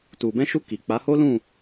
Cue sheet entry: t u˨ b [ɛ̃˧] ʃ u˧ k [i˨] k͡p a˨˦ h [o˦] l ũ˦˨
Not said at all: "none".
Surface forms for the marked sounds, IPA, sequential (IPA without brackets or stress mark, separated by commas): ɛ̃˧, i˨, o˦